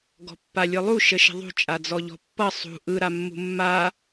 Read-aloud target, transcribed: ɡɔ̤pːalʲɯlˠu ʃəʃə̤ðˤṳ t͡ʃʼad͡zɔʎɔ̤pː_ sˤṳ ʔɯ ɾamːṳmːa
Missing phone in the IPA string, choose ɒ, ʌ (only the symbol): ʌ